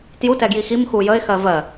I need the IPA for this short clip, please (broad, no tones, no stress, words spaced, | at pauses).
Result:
tjutɛɡji xim xujəɪ̯xɜ vɜ